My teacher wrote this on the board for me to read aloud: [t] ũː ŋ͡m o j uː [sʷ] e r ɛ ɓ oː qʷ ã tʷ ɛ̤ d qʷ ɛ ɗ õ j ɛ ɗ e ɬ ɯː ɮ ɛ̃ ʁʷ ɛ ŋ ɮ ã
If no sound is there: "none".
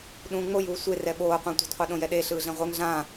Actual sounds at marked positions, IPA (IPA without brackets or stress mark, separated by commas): ɗ, sʷ